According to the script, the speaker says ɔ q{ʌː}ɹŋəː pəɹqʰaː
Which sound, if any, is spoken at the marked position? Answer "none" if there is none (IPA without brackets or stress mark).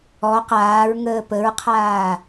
aː